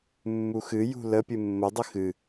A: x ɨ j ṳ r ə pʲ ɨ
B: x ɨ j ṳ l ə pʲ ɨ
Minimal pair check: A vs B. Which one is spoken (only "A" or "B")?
B